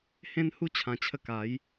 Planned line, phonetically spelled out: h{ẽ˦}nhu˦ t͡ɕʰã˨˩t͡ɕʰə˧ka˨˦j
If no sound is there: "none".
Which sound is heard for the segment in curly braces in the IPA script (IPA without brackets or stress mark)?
ẽ˦